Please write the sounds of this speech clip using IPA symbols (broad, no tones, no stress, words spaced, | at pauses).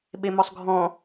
ɓemɔsˤɡʱɔ̃